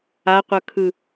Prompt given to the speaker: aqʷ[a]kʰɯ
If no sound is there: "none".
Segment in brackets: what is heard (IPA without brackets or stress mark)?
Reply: ʌ